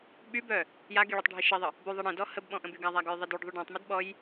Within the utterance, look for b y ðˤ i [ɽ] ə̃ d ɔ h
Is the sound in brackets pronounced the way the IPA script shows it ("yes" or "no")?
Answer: yes